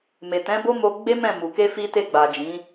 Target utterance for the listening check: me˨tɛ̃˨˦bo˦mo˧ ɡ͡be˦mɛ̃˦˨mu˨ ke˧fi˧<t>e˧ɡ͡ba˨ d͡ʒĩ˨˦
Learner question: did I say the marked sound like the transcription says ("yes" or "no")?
yes